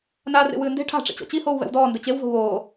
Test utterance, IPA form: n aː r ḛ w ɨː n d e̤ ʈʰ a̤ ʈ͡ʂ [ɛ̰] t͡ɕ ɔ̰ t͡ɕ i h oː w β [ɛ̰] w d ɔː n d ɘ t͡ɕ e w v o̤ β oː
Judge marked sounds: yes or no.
no, yes

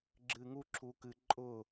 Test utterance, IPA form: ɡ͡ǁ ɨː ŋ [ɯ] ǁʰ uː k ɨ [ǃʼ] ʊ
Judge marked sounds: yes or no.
no, yes

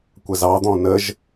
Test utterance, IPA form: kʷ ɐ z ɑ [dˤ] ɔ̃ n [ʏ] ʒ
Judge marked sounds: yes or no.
no, no

